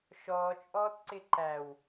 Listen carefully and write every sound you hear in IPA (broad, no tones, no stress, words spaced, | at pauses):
ʃɔːt͡ʃʼɔːtǀɪ ǃæw